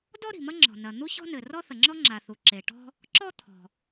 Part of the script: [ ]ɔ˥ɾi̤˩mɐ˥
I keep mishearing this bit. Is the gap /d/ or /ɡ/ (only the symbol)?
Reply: d